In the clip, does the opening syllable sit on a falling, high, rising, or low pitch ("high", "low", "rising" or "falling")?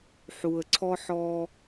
low